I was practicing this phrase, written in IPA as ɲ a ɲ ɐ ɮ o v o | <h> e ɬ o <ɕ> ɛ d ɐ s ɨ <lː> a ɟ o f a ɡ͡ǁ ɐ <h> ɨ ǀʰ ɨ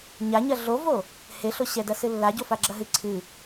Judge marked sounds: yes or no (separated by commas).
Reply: yes, yes, yes, no